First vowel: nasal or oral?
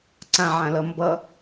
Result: nasal